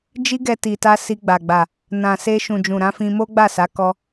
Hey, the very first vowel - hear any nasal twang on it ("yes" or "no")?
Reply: no